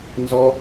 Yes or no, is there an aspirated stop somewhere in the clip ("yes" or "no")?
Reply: no